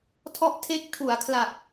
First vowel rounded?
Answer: yes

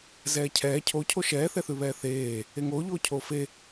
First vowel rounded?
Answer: no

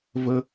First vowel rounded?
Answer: no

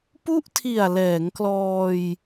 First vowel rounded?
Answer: yes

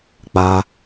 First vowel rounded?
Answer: no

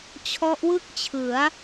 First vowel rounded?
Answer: yes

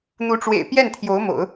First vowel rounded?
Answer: yes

